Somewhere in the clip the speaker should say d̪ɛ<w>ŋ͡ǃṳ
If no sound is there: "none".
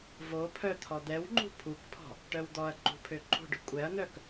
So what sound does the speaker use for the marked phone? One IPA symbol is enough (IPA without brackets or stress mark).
w